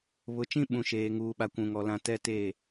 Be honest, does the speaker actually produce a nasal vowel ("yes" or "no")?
yes